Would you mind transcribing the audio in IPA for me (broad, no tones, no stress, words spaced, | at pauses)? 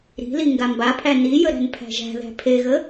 ɾi̤li ŋɡambapʰæ nijə ɾæ̤npʰæ̤ʒæ̤ðæ̤ pʰeɣə